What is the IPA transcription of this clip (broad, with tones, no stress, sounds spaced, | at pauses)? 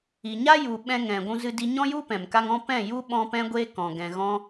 i˨ ɲ a˦ j u˨ ɓ ɛ̃˧ ŋ ɛ̃˨ ɡʷ ũ˧ z ɨ˧ d i˧ ɲ ɔ̃˦ j u˦ p ɛ̃˨ m k a˦ ŋ ɔ̃˦ p ɛ̃˦˨ j u˦ ɓ ɔ̃˧ p ɛ̃˧ ɡʷ eː˧ k ɔ̃˨ ɡ ɛ̃˨ ɣ ɔ̃˧